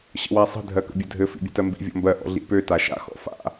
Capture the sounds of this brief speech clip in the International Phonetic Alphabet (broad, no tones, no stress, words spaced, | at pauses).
ɕə̰wasˤə̤ dʱɜkə̰bʲɘdʱɘ fḭbʲə̤tɜmbḭ vʲɔ̰mbɜ ʔɔ̰ɮḭpø taʃa̰ xɔ̰fa̰